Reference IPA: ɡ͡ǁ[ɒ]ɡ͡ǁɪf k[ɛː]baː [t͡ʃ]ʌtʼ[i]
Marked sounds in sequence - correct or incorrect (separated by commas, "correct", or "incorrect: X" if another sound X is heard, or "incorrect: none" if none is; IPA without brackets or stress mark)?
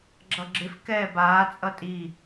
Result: incorrect: ʌ, correct, incorrect: t͡sʼ, correct